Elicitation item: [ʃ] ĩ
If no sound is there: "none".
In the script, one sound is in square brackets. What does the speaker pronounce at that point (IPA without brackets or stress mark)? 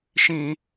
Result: ʃ